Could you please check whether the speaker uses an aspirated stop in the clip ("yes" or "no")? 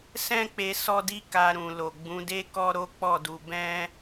no